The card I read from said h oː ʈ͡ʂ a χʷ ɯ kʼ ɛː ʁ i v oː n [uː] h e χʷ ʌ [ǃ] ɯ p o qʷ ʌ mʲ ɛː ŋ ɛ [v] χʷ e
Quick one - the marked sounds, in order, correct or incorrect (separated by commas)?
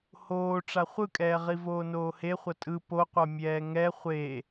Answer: incorrect, incorrect, incorrect